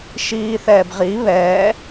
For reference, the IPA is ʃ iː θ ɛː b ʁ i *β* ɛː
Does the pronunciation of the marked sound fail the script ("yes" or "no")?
no